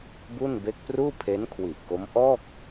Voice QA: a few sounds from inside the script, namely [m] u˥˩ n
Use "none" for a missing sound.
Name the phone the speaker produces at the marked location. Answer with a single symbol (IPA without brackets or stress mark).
b